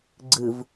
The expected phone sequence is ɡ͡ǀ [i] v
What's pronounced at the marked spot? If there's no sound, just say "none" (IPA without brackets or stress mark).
ɨ